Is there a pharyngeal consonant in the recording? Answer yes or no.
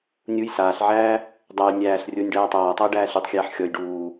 yes